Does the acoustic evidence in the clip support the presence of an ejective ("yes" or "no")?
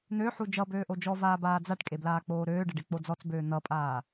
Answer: yes